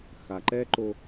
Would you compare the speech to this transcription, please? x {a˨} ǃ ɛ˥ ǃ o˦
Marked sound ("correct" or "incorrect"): correct